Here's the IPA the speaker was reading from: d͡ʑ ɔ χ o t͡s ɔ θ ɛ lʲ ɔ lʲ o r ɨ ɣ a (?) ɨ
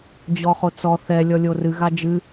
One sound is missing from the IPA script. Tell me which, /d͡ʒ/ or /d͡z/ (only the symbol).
d͡ʒ